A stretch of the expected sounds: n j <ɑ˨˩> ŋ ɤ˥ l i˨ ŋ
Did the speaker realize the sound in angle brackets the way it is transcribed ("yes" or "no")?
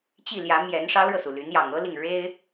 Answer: yes